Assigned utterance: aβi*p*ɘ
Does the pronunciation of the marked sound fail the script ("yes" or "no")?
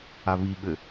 yes